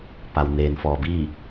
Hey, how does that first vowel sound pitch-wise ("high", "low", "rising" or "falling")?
low